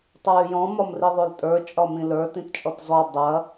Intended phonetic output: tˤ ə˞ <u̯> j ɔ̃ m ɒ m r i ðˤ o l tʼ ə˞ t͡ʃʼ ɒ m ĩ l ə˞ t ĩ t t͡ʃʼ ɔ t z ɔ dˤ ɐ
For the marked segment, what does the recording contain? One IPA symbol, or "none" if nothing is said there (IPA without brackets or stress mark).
y̯